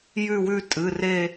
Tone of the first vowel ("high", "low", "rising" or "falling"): falling